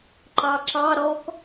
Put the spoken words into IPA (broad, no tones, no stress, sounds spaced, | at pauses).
ǃ ɑ ǁ ɑ ɾ ɔ k